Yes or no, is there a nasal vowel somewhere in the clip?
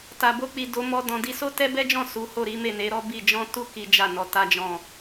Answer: yes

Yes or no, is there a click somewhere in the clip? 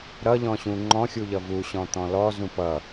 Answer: yes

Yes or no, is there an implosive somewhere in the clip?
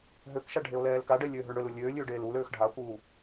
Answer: no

